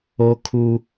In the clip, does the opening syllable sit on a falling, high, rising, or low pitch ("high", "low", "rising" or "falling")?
high